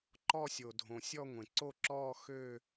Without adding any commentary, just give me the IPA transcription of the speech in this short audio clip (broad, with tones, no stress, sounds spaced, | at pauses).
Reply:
ǃ ɔ˥˧ sʲ o˨ dʱ õ˨ sʲ ɔ˥˧ ŋʷ ẽ˨ ǀ o˥˧ ǁ ɔː˥˧ x øː˥˧